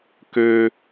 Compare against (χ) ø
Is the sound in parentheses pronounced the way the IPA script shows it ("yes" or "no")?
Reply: no